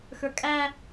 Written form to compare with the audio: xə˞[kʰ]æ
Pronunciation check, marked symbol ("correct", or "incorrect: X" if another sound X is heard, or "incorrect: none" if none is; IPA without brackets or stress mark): incorrect: kʼ